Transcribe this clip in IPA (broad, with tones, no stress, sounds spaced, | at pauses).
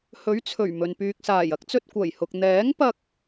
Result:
h ɵ˨˥ ɥ t͡sʰ ɵ˨˩ ɥ m ɵ˨ n p yː˨ k̚ s aː˨˩ j ɐ˨˥ k̚ t͡s ɵ˧ t̚ kʷ ɐ˨˩ j h ʊ˨ k̚ n̪ ɛː˨˥ ŋ p ɐ˧ k̚